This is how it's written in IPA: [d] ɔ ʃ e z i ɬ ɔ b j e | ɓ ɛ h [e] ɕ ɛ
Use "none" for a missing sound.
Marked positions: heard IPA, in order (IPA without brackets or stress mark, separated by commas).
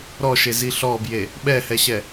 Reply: ɾ, ɛ